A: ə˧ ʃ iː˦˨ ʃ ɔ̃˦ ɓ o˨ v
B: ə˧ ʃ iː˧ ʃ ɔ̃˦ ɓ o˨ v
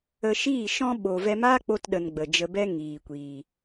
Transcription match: A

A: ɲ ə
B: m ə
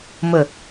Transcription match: B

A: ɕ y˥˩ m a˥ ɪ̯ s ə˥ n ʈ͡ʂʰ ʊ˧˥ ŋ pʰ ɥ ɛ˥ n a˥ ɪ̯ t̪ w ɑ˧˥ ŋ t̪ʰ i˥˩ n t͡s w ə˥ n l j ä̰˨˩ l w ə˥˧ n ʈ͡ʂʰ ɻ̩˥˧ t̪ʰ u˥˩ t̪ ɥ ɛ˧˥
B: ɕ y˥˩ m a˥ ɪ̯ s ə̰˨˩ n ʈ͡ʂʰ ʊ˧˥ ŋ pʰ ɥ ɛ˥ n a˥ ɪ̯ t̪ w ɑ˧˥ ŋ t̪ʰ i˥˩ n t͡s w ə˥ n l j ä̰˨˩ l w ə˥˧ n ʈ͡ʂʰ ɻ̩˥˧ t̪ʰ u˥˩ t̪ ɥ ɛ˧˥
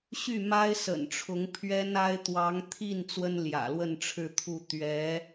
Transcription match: B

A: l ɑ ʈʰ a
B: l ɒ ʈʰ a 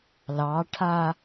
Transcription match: A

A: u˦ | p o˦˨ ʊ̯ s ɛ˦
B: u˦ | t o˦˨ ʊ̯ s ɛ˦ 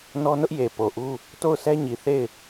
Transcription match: B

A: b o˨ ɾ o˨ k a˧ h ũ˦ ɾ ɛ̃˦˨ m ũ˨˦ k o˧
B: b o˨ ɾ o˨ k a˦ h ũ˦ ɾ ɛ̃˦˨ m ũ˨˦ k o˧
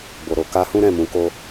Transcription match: A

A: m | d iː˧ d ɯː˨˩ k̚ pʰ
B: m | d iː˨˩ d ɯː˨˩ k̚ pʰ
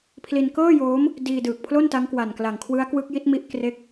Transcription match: A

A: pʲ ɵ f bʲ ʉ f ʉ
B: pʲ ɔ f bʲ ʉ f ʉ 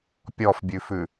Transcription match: B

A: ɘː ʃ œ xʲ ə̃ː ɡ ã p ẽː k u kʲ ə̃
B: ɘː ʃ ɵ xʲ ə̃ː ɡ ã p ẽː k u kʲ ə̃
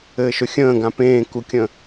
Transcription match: B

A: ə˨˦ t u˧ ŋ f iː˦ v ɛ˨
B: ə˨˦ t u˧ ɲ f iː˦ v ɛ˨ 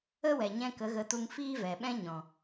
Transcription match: A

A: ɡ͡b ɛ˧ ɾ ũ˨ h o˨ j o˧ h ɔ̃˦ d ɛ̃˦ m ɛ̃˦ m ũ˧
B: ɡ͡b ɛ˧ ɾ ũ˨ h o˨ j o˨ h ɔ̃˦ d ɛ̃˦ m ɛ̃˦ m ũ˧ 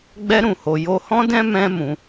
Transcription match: A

